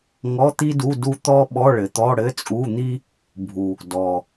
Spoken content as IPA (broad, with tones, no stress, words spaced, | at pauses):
ŋɔ˧˥˧t̪i˥du˧˥˧ du˥ t̪ɔ˥ ɓɔ˧˥˧ɭɘ˨˩t̪ɔ˧˥˧ ɽɘ˧˥˧t͡sʼu˧˥˧n̪i˥ | bʱu˨˩ | dɔ˨˩